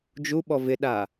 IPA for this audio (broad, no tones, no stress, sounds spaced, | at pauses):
d͡ʒ u ɓ ɔ v ɪ ɗ a